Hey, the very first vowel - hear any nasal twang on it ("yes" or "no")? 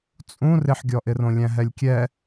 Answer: yes